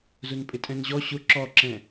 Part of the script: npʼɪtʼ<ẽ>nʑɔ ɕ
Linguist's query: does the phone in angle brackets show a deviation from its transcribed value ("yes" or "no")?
yes